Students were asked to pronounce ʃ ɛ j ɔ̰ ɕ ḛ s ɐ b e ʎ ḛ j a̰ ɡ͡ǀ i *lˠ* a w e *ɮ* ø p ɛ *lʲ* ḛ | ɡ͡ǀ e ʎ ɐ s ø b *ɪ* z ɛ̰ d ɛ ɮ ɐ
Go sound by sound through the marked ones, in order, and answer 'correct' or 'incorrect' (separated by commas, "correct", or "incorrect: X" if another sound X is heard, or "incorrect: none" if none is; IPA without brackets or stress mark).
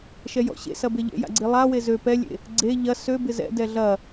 correct, incorrect: z, correct, correct